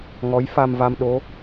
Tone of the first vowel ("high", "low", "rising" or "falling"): rising